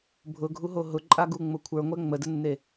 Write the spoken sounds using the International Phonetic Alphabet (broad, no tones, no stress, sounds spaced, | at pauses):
bʱ ʊ ɡʱ u ɦ o ɦ ʊ ǃʼ a ɡ u ŋ͡m ʊ kʷʰ ə˞ ŋʷ ɛ ŋ͡m ə d ə nː e